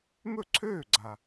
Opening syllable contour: falling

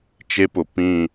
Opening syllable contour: high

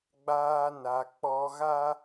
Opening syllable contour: high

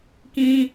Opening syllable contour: high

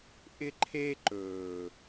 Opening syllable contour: high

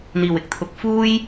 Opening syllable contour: low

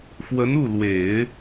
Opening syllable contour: rising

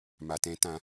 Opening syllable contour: low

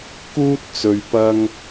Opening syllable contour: high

